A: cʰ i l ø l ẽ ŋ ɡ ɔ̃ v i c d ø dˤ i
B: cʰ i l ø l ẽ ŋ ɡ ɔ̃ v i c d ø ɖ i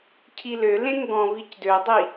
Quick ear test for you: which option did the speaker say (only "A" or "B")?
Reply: A